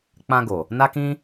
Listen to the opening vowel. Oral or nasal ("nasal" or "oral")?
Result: nasal